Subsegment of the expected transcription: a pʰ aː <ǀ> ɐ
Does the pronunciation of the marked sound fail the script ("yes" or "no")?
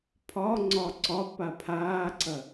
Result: no